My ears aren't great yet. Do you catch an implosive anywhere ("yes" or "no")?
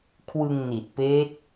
no